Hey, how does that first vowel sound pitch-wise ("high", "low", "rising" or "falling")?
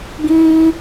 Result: high